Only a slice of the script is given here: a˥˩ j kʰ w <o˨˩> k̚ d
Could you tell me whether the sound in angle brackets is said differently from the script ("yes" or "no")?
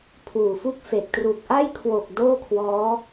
no